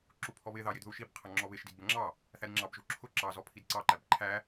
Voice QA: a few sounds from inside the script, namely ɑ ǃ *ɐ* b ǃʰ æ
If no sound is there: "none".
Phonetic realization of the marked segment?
æ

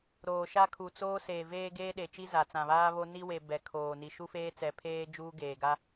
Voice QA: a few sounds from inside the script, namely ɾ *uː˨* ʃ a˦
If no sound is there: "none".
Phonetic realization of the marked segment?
oː˨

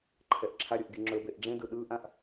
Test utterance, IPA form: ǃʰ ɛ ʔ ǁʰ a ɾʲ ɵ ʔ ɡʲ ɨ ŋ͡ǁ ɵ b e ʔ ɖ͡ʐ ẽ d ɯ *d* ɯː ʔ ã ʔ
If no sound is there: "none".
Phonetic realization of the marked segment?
ɗ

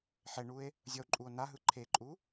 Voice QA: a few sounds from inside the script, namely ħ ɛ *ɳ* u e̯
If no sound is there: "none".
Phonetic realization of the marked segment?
ɳ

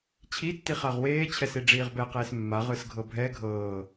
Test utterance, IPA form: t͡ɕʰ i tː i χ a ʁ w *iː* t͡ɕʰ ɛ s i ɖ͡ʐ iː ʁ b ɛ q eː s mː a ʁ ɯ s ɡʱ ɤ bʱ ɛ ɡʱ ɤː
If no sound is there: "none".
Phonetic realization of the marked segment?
eː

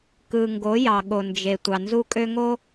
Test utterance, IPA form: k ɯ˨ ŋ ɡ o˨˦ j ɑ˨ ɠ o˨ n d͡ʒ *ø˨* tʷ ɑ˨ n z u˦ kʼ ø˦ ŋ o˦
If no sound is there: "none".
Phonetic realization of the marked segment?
e˨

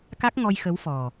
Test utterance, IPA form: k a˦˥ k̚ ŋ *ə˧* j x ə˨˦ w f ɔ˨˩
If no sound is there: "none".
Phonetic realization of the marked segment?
ɔ˧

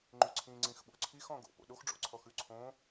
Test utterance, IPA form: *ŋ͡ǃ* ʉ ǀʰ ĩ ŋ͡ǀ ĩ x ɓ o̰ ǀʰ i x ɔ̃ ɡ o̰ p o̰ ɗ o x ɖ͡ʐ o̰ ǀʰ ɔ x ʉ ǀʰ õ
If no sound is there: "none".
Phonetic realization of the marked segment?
ŋ͡ǃ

